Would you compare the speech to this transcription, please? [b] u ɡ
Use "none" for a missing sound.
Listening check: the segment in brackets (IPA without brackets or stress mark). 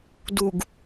d